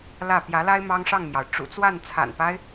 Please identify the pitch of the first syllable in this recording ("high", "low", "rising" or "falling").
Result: falling